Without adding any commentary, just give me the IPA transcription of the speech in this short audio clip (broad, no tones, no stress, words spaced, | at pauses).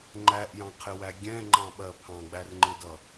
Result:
ŋ͡ǃæʔjɑ̃qʰɪwæ ɡʲɛ̃ŋ͡ǃɑ̃ɓɜ pʰɑ̃ɡ͡bærŋ͡ǃɪdʌ